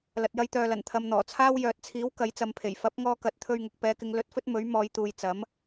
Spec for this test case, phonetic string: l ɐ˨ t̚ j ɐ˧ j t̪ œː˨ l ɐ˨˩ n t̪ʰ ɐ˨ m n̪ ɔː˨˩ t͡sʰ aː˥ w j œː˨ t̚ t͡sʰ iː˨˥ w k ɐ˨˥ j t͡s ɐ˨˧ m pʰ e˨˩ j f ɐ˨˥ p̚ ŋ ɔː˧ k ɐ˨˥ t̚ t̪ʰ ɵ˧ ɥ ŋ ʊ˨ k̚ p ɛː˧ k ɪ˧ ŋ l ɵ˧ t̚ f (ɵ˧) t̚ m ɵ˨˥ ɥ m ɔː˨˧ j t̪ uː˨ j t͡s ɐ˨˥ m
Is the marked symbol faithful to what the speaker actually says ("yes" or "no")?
no